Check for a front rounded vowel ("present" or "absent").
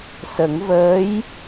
absent